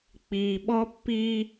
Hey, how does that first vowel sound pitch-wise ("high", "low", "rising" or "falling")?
low